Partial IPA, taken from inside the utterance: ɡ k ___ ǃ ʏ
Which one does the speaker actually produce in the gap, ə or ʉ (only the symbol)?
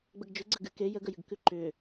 ʉ